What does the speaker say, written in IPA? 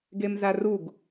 ɡ e m z a r u ɡ

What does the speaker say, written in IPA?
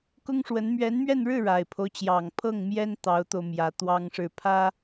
k ʊ˥ ŋ ʂ w ə˧˥ n m ɥ ɛ˧˥ n m ɥ ɛ˥˧ n ɻ ɻ̩˥˩ ɻ a˨˩ ɪ̯ pʰ o˦ ʊ̯ t͡ɕ j ɑ˨˩ ŋ pʰ ɤ˥˩ ŋ m j ɛ˥ n t̪ ɑ˧˥ ʊ̯ t̪ o˧ ʊ̯ m j ä˧˥ t̪ w ɑ˥ ŋ ʂ ɻ̩˥˩ pʰ ä˥

